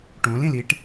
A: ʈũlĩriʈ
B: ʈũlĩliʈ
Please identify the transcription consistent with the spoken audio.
B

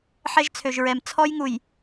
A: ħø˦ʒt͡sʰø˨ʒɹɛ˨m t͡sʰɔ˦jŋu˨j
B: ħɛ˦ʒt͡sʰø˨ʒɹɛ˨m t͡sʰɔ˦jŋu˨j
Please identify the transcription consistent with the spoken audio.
B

